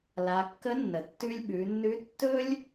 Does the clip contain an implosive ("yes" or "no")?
yes